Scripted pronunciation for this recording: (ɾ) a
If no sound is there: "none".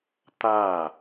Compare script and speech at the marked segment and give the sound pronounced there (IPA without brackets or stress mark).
t̪